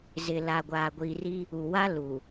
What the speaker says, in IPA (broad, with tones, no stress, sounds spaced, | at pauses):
z ɪ˨ l a˨ ɡʷ aː˨ ɡʷ iː˨ r i˦ | u˨ w a˦ l u˨